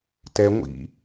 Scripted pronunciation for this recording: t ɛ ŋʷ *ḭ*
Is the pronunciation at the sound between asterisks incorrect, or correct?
correct